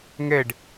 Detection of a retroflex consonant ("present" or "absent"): present